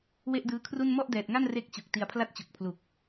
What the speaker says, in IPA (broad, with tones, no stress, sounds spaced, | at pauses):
w e˥˩ ʔ d ɯː˦˥ kʰ r u˥˩ n m ɔ˥˩ ʔ d ɛː˨˩ t̚ ŋ a˥˩ n r e˦˥ k̚ t͡ɕ u˨˩ k̚ t i˧ a̯ pʰ l a˥˩ t̚ t͡ɕ u˨˩ k̚ pʰ l u˨˩ k̚